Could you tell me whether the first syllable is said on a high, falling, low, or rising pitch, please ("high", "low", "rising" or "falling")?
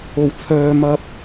low